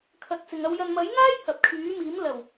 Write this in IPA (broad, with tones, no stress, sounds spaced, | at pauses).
kʰ ɐ˨ t̚ t͡s ɪ˨ ŋ ɐ˧ w j ɐ˨ n m ɐ˨˥ j ŋ aː˥ j h ɐ˨ p̚ kʰ yː˨˥ m iː˨˥ m l ɐ˨˩ w